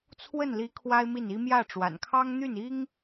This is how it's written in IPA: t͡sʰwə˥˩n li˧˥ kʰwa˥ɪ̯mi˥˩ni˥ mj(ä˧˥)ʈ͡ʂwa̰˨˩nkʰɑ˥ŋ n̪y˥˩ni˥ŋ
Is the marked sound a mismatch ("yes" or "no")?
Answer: yes